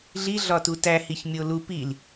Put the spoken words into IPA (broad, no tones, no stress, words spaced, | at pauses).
ɮi ɮɒtutæ hiçmʲolu pil